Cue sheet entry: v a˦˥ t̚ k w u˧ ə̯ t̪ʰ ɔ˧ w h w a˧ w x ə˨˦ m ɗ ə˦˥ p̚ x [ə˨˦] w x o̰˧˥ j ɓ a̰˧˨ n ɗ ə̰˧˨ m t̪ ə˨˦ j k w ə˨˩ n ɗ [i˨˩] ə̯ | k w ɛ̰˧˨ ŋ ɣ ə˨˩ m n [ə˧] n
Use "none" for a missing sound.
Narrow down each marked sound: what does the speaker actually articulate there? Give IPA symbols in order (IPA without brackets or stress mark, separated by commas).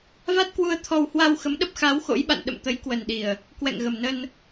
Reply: a˨˦, i˨˩, ə˧